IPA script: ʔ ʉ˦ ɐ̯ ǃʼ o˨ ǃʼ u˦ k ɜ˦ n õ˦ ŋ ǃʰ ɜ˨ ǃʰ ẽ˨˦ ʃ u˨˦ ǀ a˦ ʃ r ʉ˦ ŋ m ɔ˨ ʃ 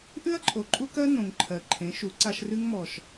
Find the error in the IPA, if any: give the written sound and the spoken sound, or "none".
õ˦ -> õ˨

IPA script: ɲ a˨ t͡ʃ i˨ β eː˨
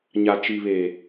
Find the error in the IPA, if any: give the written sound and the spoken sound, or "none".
none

